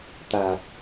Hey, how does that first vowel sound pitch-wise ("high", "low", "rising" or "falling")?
low